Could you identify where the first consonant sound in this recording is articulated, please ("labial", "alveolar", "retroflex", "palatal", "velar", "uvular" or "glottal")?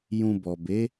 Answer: palatal